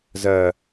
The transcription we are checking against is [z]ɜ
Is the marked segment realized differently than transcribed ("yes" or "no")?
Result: no